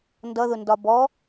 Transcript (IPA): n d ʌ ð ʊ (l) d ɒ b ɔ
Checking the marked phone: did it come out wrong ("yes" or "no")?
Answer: yes